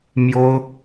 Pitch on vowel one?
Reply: high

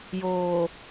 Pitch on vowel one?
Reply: low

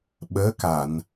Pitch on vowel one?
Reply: rising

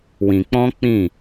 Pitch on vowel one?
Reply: low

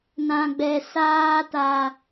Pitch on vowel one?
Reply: high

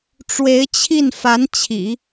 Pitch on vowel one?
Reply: rising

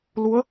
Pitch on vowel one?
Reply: rising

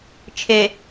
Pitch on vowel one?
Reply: low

